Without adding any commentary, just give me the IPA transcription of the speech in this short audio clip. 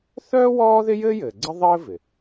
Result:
θ œː˥ w ɔː˥ ð ɪ˥ j ɘː˥ j ɘː˩ ɡ͡ǀ ɘ˥ ðˤ ɘː˥ v ɪ˩

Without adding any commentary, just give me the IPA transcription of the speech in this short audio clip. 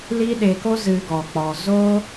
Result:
l i˦ ɗ e˧ k o˦ z ɨ˧ ɡ ɔ˧ k͡p ɔ˧ z o˦

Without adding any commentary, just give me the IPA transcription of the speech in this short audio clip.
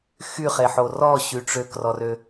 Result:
x y χ e ħ o r ɔ ɕ y ʈ͡ʂ ø k r ɔ r ø

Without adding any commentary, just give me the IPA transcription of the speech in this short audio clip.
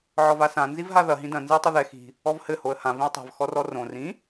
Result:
ʕ ɔ v a s ã n z i v ɦ a ð ɐ ɦ ĩ d ɐ̃ n z ɨ ə̯ tˤ ɘ ð ɛ x i̤ | ɔ v h ɘ h o ə̯ h ã v ĩ ə̯ tˤ a̤ v x ɔ r ɔ r õ r ĩ

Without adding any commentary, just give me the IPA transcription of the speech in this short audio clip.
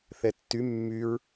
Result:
θ ɛ tː y mː y ɹ

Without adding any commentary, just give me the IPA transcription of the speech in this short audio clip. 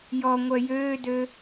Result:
j ɔ ŋʷ œ j øː d ø

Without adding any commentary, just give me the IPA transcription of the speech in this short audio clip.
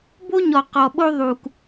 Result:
b o˦ ɲ ɔ˨ q ɔ˨ ɓ o˦ ðˤ u˨ k

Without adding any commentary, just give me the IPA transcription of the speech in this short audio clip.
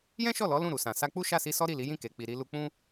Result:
j ɛ̃˦ ʃ ɔ˦˨ l ɔ˨˦ l ũ˦˨ ɾ u˨ s ã˨ s a˧ k͡p u˦ ʃ a˦˨ s i˧ s ɔ˦ ɾ i˦˨ l i˨˦ j ĩ˦˨ k e˨ k͡p i˨ ɾ i˧ l u˧ k͡p ũ˦

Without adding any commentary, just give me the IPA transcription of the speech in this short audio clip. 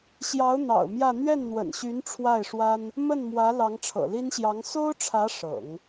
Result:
ɕ j ɑ˧˥ ʊ̯ n̪ ɑ̰˨˩ ʊ̯ m j ä˥˧ n̪ ɥ ɛ˥˩ n n̪ w ə̰˨˩ n ɕ y˧˥ n ʈ͡ʂʰ w a˥˩ ɪ̯ ʂ w a˥ n | m ə˥˩ n m w ä˧˥ l ɑ˧˥ ŋ ʈ͡ʂʰ ɤ̰˨˩ l i˥ n ɕ j ɑ˧˥ ŋ s o˥ ʊ̯ ʈ͡ʂʰ ä˧˥ ʂ ɤ̰˨˩˦ ŋ

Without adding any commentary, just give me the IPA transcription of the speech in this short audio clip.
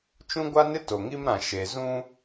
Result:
t͡ʃ ũ˦ ɡʷ a˦ n ɪ˦ t o˨ ŋ i˦ m ɾ ã˨ ʃ e˨ z ũ˦

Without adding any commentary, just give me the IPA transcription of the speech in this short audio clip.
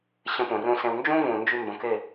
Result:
ɕ ə̃˧ p ũ˨ r ũ˧ s ẽ˧ w n d͡ʒ ũ˦ v ũ˨ n d͡ʒ y˧ m b ə̃˨˦ k e˦˨

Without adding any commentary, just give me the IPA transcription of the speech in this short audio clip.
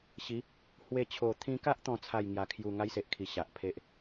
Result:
ɕ i˨˦ | h w e˧ t͡ɕʰ o˨˩ t̪ʰ ĩ˧ k a˦ ʔ t̪ ɔ̃˦ t͡sʰ a˥˧ j ŋ j a˨˩ kʰ j u˨˩ ŋ a˦ j s e˨ ʔ kʰ i˨˩ ɕ a˨ ʔ pʰ e˦ ʔ

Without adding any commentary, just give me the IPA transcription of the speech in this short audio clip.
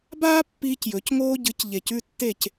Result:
b aː˦ pː iː˦ c j ɵ˨˦ c ŋ oː˦ ɟ ɨ˨˦ c ʎ e˨ c ʉ˦ tː e˦˨ c

